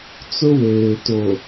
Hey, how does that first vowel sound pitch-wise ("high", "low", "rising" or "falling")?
high